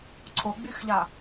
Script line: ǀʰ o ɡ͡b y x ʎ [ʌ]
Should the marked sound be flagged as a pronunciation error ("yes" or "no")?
yes